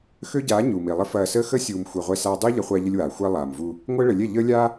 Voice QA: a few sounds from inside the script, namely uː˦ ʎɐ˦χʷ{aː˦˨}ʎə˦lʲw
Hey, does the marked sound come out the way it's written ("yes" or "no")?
no